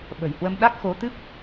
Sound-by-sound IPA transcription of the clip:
ɓ ə̤˨˩ j h w ə˧ m ɗ a˦˥ k̚ x o˨˦ t̪ ɨ˦˥ p̚

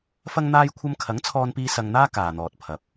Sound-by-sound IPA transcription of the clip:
f ɐ˥ ŋ n̪ aː˥ j kʷʰ ɐ˥ m kʰ ɐ˨˥ ŋ t͡sʰ ɔː˧ n p iː˧ s ɐ˧ ŋ n̪ aː˥ k aː˨ n̪ ɔː˨ t̚ pʰ ɐ˨ p̚

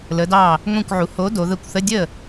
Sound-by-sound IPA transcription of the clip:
l ə˩˧ d ɑ˧˩ | ŋʷ ĩ˧˩ kʷ ʕ u˩˧ h o˨˥ d o˩˧ ð ə˧˩ kʷ θ ə˧˥˧ dʲ ə˥˩

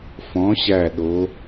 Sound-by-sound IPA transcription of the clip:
f ɔ̃˨˥ ɕ æ˧˩ ɗ o˨˥

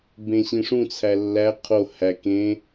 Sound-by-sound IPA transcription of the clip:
b ẽ ɕ ĩ ʂ ũ t͡sʰ æ lː æ qʰ o h æ k ẽ

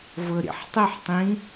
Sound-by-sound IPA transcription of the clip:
v ɤ ɾ ḭ ħ tˤ ʊ ħ tˤ ĩ

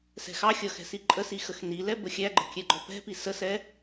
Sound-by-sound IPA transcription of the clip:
s ɛ̤ x ɑ xʲ ʌ x ɛ̤ s i ǃʼ ə s i x ə x n i l ɛ b ə xʲ æ ɡ͡ǃ ə̤ kʲ ɛ ɡ͡ǃ ɔ p ɛ̤ p i s ə s ɛ

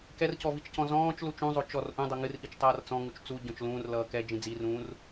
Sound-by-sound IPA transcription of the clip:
k ɛ r c ɔ v i t͡ʃ c ɔ̃ z ɔ̃ː t͡ʃ l u t͡ʃ ũ zˤ o t͡ʃ ɔ r ʔ ũ dˤ ʌ ŋ ɨ r ʔ i t͡ʃ tˤ ʌː r t͡s ɔ̃ ŋ u t͡ʃ t͡s u ɟ ɔ̃ t͡ʃ l ũː r l ʌː k ɛ d͡ʒ ĩ d͡z i r ũː r

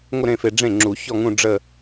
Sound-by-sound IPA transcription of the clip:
ŋʷ ə˥˧ ɾ ẽ˥˩ f e˨ ɖ͡ʐ ẽ˥˩ ŋ͡ǁ u˨˩˦ ç ɔ˥˧ ŋ ũ˥˧ ɖ͡ʐ ə˥˧

